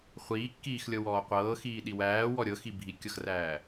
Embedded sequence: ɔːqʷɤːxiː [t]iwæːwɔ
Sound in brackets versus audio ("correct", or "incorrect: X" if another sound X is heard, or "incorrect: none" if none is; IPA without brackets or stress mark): incorrect: ɗ